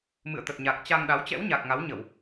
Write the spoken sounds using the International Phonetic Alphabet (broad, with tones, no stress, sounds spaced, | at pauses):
m ɨ̰˧˨ ə̯ t̪ ə˨˩ t̚ ɲ a˨˩ k̚ t͡ɕ a˧ ŋ ɗ a˨˦ w t͡ɕ ɛ̰˧˥ w ɲ a˨˩ k̚ ŋ a˨˦ w ɲ ə˧˩˨ w